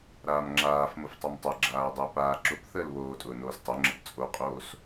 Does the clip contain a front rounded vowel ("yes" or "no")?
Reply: yes